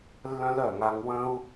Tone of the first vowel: high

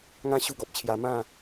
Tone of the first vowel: high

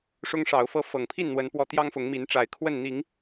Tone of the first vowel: high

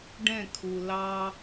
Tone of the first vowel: falling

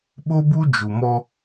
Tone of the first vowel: high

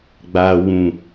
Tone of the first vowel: low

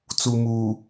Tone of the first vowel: low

